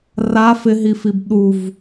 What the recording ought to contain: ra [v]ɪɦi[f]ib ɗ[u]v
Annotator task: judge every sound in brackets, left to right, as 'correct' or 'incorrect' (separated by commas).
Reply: incorrect, correct, correct